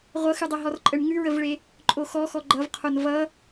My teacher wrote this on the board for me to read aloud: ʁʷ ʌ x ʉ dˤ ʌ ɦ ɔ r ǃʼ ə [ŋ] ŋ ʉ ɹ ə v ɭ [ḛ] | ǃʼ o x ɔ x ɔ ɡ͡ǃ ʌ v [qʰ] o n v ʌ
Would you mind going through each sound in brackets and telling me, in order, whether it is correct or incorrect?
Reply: incorrect: ɳ, incorrect: e, correct

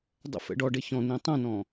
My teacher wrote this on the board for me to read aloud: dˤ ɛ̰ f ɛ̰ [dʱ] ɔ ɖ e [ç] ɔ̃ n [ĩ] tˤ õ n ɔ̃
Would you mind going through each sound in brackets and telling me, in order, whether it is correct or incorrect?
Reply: incorrect: ɖ, correct, correct

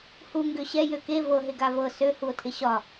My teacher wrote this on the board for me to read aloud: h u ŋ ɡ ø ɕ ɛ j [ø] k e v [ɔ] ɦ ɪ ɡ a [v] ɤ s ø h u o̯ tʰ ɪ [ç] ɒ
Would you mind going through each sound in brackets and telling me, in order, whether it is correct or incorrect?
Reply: correct, incorrect: ɤ, correct, incorrect: ɕ

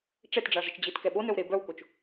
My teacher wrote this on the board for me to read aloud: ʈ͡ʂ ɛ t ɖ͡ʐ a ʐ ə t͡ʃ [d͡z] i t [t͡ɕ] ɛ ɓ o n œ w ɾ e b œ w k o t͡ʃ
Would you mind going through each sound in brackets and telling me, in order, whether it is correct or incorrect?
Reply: incorrect: d͡ʑ, incorrect: k

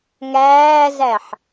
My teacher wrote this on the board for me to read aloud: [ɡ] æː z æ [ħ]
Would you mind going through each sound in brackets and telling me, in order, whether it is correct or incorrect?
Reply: incorrect: ŋ, correct

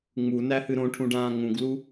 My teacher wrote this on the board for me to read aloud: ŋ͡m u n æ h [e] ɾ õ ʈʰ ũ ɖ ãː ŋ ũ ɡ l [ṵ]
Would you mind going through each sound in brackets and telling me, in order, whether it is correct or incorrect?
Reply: incorrect: ɨ, incorrect: u

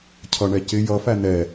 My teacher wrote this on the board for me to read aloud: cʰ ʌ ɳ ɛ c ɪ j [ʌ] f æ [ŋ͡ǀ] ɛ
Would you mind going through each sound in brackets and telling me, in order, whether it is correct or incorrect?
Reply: correct, incorrect: n̪

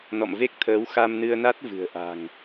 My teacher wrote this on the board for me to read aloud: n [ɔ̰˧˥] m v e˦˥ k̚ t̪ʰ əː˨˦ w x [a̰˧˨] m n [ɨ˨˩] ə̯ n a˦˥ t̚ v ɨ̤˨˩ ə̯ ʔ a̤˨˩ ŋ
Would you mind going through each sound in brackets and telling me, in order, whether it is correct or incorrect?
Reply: incorrect: ɔ̰˧˨, incorrect: a˧, incorrect: ɨ˧

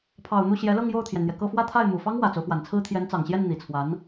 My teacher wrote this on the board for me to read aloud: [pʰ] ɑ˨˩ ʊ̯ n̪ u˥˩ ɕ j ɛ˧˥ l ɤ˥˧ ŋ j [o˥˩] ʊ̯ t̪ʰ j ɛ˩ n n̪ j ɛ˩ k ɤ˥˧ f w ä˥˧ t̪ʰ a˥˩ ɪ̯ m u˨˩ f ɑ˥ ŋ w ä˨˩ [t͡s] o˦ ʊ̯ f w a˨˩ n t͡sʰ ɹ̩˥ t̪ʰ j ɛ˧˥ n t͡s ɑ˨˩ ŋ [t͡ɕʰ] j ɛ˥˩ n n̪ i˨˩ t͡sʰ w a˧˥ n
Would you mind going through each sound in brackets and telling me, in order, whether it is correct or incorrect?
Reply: correct, correct, correct, incorrect: ɕ

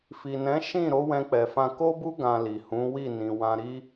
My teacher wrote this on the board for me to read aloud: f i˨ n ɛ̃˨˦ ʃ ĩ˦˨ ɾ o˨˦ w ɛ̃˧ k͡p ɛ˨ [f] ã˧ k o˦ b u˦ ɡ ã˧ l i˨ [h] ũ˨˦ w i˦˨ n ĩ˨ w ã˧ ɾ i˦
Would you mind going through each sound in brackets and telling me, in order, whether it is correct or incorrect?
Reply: correct, correct

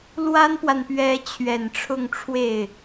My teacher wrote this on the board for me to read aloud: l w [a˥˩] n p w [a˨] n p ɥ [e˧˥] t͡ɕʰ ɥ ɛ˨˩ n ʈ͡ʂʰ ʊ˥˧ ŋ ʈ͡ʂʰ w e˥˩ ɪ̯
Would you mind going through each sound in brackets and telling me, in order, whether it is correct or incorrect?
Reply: incorrect: a˥, correct, incorrect: ɛ˧˥

